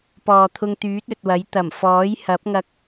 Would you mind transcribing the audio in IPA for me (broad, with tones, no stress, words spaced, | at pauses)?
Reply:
pɔː˨t̪ʰʊ˧ŋt̪yː˨˥t̚ ɵ˨t̚wɐ˨˥jt̪ɐ˨˩m fɔː˨˥jhɐ˨˥p̚ŋɐ˧k̚